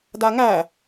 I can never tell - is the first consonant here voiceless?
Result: no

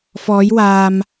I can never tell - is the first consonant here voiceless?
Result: yes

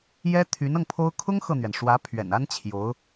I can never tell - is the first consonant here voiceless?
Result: no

